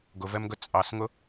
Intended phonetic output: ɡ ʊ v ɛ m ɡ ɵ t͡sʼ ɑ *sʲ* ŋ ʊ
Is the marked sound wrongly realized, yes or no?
yes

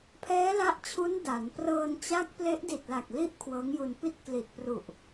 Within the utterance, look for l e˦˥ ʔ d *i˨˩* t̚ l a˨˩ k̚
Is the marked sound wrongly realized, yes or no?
no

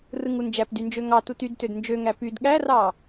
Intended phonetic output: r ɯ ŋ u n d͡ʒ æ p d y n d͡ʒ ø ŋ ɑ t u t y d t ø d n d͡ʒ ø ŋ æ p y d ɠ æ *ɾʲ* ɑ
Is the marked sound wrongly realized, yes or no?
yes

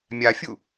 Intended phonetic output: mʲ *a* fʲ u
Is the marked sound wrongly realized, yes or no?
no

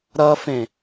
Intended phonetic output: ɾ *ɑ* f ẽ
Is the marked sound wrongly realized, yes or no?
yes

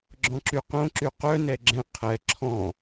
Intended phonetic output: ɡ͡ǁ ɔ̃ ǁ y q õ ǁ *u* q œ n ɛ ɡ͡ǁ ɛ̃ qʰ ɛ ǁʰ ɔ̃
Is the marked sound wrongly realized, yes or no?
yes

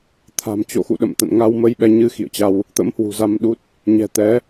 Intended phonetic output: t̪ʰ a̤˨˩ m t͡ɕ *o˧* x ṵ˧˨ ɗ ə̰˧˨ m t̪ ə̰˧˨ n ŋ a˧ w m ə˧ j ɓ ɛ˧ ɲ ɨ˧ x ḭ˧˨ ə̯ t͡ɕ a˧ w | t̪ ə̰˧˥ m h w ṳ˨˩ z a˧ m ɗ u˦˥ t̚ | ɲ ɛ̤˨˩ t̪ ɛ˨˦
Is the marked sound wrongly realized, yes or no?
yes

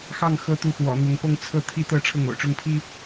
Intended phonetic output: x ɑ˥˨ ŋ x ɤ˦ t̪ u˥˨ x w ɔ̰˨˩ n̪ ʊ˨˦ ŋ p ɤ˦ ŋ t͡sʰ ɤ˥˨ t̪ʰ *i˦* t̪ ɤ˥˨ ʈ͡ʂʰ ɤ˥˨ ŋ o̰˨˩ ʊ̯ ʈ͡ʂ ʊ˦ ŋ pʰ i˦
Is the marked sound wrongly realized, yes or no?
no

